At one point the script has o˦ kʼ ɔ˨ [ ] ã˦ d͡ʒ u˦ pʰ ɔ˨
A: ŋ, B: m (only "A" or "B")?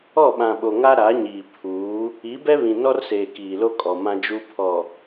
B